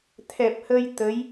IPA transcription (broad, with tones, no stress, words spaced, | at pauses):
t̪ʰɛ˨˩p̚hə˧j t̪ə˧˥j